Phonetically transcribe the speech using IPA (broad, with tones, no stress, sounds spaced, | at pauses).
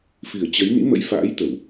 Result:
f i˨˩ ə̯ t͡ɕ ə˨˦ j n ḭ˧˥ m ə̰˧˥ j f a̰ː˧˥ j t̪ ə˧˩˨ w